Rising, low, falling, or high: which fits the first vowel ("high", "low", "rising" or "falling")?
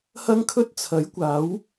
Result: high